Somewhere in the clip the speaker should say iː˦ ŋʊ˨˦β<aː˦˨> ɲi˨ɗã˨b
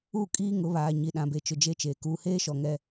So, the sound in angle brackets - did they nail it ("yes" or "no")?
no